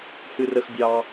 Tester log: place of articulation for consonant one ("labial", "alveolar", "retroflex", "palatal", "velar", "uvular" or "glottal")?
glottal